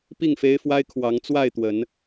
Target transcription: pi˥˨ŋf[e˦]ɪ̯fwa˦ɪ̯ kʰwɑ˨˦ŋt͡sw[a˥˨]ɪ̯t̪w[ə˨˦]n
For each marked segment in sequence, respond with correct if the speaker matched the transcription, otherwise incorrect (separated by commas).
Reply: correct, correct, correct